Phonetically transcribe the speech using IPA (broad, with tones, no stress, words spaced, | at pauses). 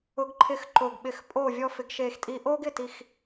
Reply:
ʊ˧˥ɡǃʰɪ˦˨x ǃo˨˩ɡɓɪ˨˩˦x pʼo˦˨ vʲɔ˥fɪ˧˥ɡʃe˦˨xtʼi˥ ʔo˥ɡ ɪ˦˨ti˦˨x